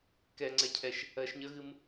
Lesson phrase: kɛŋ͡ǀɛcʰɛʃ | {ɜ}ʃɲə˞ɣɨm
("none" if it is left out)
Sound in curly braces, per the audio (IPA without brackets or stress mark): ɜ